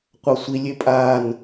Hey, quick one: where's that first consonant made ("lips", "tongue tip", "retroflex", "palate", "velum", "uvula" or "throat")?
uvula